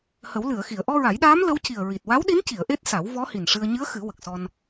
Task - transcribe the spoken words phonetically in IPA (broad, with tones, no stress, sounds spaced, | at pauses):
h ə˨˩˦ w l ɨ˨˩˨ ə̯ x i˨˩˨ ə̯ ʔ ɔ˧ ɹ a˨˩˦ j ɗ aː˧˥ m l ə˧˥ w c i˨˩ ə̯ ɹ i˨˩ t̚ w a˧˥ w ɗ i˧˥ n c i˨˩˨ ə̯ ʔ e˦˥ t̚ s a˨˩˦ w v ɔ˧˥ h i˨˩ n ʂ ɨ˧ ə̯ ɲ ɨ˧˥ ə̯ x ɨ˨˩˦ w ə˨˩ k̚ s ɔ˧ n